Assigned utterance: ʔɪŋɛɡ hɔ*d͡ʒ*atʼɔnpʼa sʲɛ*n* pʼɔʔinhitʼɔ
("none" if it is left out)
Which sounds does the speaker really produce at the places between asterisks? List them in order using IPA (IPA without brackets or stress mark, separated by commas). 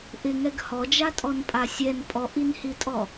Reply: d͡ʒ, n